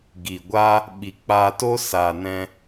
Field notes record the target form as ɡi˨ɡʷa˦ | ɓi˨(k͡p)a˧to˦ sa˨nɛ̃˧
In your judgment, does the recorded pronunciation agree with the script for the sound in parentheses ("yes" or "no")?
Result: yes